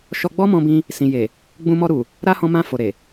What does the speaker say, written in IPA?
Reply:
ʃ ɔ˧ ɡ͡b ɔ˦ m ɔ̃˧ b ĩ˧ | s ĩ˨ j e˨ | ɡ͡b ũ˧ m ɔ˧ ɾ u˨ | ɾ a˦ h ɔ̃˧ m ã˧ f o˨ ɾ e˨

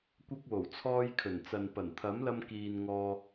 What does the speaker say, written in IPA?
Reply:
kʷ ɐ˧ k̚ w o˨˩ w t͡sʰ ɔː˧ j kʰ ɵ˨˩ n t͡s ɐ˨ n p ɐ˨˩ n t̪ʰ ɐ˨˥ m l ɐ˧ m k iː˨ n ŋ ɔː˧

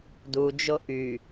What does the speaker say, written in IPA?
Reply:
d u d͡ʒ o ʔ y

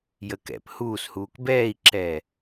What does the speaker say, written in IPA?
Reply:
j ə k ɛ̰ p h uː s h uː k b ɛː i̯ ǁ ɛː

